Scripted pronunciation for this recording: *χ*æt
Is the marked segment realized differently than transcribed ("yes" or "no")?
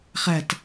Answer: no